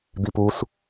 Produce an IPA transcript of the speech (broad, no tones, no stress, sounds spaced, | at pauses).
d̪ i p u s